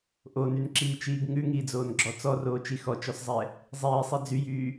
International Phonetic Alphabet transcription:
ʔ o n y n ǁ iː t͡ʃ iː ɡ ŋ ʉ ŋ iː d͡z oː n ɡ͡ǁ ɔ t͡s ɔ r oː t͡ʃ i x ɔ t͡ʃ ɔ s zˤ ɛ | zˤ iː sˤ i d͡z y j yː

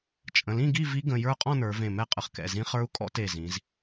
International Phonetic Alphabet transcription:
t͡ʃʼ ə̃˩˧˩ l ĩ˥˨ ɡ i˥˨ v i˦˥ ɡ ə̃˩˧˩ j ə˞˥˨ qʼ ɔ̃˥˨ n ə˞˩˧ v ẽ˧˩ m ɛ˥˨ qʼ ə˩˧ χ k ɛ̰˩˧˩ z ĩ˦˥ χ ə˞˦˥ u̯ kʼ ɔ̰˦˥ t e˧˩ z ĩ˩˧ z

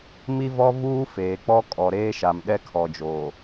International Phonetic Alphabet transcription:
m i˦ v ɔ˦ v uː˦ f eː˨ k͡p ɔ˦ kʼ ɔ˨ ɾ eː˦ ʃ a˨ m ɗ ɛ˦ kʰ ɔ˨ d͡ʒ oː˨

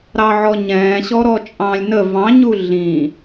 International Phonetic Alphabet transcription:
ɾ ɑ ʕ ɔ ɲ ɛ̃ː ɕ ɔ ɾ ɔ t͡ʃʼ ɑ̃ː lʲ n ə v ɑ̃ ɲ u ɮ ĩ

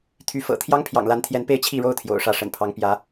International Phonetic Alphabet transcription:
t̪ʰ y˧˥ f ɤ̰˨˩ t̪ʰ j ɑ˥ ŋ pʰ j ɑ̰˨˩ ŋ l a˧˥ n t̪ʰ j ɛ˧˥ n p e˥˧ ɪ̯ t͡ɕʰ i˥˧ ɻ o˥˩ ʊ̯ t̪ʰ j o̰˨˩ ʊ̯ ʂ ä˥˩ ʂ ə̰˨˩ n pʰ ɑ˧˥ ŋ p j ä˧˥

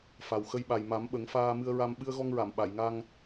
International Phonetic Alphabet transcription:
f a˨˩ w x ə˧ j ɓ a˨˩ j m a˨˩˦ m ɓ ə˨˩˦ ŋ f aː˧ m ɨ˧ ə̯ ɹ a˧ m ɓ ɨ˧ ə̯ ɣ ɔ˧ ŋ ɹ a˨˩˨ m ɓ a˨˩˨ j ŋ a˧ ŋ

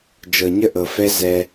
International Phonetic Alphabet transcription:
d͡ʒ ɤ˨ ɲ ə˦ ʔ ɤ˨ f ɛ˦ z ɛ˦

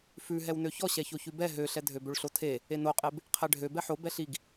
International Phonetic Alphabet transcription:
f ʉ ɦ ɛ w n ø ç ɔ ɕ ɛ ç o ç ʉ b ɛ ɦ ø ɬ ɛ dʱ ø b ø ɭ ɬ o tʰ e | e n o qʼ e b | qʰ ɛ ɖʱ ø b ɛ ħ o b ɛ ɬ i ɡ

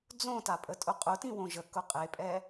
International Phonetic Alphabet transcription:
d͡z õ t a pʼ ə tʼ ʊ qʼ ʊ t ĩ w õ ʒ ə k ʊ qʼ e pʼ ɛ

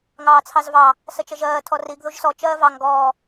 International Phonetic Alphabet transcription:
ŋ ɑː t͡sʰ ɑ z v ɑ | s ə t͡ʃ ə ʒ ɜː tʰ ɔ r i ɡ ð u ʒ s ɔ t͡ʃ ɜː v ɑ ŋ ɡ ɔː

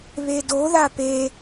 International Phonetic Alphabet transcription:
β e d o ð a p e

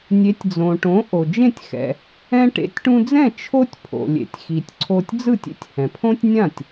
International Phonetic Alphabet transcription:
nʲ e˩˥ tʲ d͡z õ˩ ʈ õ˩˥ ʔ o˩ d͡ʒ ẽ˥˩ tʲ x ɛ̰˩ | ɛ̃˧ ʈ ḛ˩˥ tʲ ʈ ũ˧ d͡z ɛ̃˥˩ t͡ʃʰ o˥ tʲ pʰ o̰˩ lʲ ḛ˩ tʲ x i˩ tʲ ǀʰ o˧ tʲ d͡z ɯ˥˩ tʲ ḛ˧ tʲ h ɛ̃˩ pʰ õ˥ tʲ nʲ ã˥˩ tʲ

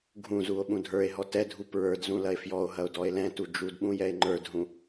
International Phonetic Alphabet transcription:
ɡʱ ũ z u o̯ ɓ ũ dʱ ə˞ e̯ ɦ ɔ t ɛ dʱ u p ɹ ə˞ d z ũ l ɐ e̯ f j ɔ o̯ ɦ ɐ o̯ d ɔ e̯ l ɛ̃ t u d͡ʒ u d ɓ ũ j ɛ e̯ ŋ͡ǃ ə˞ d ɦ ũ

